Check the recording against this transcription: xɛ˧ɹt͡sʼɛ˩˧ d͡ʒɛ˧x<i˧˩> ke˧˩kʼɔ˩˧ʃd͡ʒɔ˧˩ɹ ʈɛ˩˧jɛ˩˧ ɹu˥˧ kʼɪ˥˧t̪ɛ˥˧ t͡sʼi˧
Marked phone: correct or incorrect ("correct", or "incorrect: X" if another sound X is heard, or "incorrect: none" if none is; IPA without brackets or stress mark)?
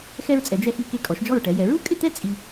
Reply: correct